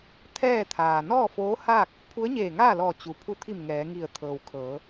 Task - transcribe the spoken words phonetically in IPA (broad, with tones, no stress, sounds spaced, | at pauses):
t̪ʰ ɛː˥˨ t̪ʰ aː˩ n ɔː˥˨ f oː˧˥ h aː˥˨ k̚ | pʰ u˧˥ ə̯ ɲ eː˧˩ ŋ aː˥˨ l ɔː˧˩ t͡ɕ u˩ pʰ u˧˩ t̪ʰ i˧˩ m ŋ ɛː˩˧ ŋ i˧˩ ə̯ t̪ʰ ɤː˩ w kʰ ɤː˩˧